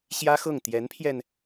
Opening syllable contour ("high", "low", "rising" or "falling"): high